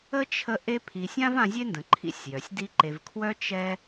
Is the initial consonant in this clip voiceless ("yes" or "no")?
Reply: yes